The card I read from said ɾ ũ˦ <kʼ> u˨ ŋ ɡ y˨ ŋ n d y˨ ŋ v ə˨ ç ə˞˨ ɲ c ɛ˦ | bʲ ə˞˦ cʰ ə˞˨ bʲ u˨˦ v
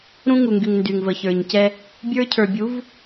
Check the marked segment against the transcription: incorrect: ŋ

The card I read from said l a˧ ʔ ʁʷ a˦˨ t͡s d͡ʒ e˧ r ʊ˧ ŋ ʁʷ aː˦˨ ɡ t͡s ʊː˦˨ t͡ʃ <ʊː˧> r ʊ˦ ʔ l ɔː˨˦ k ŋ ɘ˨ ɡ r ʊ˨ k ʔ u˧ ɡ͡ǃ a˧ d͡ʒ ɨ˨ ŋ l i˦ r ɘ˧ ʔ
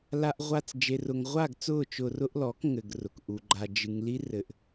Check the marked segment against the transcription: correct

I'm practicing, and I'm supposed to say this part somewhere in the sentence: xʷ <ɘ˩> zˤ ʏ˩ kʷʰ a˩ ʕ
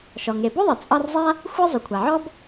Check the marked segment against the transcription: incorrect: ɘ˥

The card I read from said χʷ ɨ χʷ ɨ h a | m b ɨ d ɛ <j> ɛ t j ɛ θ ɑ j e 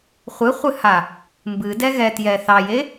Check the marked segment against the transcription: incorrect: ɣ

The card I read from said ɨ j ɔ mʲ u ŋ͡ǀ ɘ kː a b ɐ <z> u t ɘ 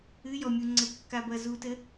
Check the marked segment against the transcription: correct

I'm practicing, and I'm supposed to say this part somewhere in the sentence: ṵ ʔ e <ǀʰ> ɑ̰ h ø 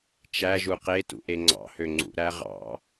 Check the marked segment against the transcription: incorrect: ŋ͡ǀ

